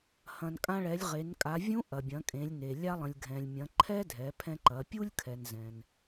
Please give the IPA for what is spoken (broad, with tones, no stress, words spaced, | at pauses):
hɐ̃˩nkʼã˧ɭɛ˩˧lʲ ʁe˩˧nkʼa˩˧ vʲũ˧˥ ʔɐ˩bʲɐ̃˩˧kʼẽ˩˧lʲne˩ lʲa˧lˠə̃˩lʲɡʱɛ̃˩lʲ mʲɐ̃˩˧ ǃʰɛ˥dʱɛ˩˧pʰɛ̃˧ǃɐ˩˧ pʲu˥lʲkʰɛ˩nzɛ̃˩n